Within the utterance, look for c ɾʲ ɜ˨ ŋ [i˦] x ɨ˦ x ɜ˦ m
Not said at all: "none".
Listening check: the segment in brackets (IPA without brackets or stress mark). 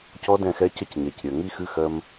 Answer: i˦